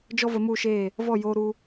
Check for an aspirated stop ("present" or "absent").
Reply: absent